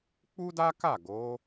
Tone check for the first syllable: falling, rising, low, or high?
high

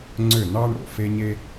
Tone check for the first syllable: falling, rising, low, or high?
falling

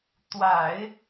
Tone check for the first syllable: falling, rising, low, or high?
low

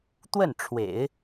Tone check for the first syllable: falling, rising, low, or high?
falling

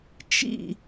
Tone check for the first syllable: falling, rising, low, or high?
falling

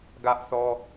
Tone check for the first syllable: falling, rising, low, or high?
high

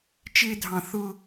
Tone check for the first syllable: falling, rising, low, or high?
high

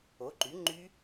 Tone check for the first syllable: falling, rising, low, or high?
rising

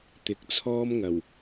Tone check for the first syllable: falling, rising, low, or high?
rising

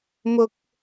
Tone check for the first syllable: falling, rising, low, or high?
high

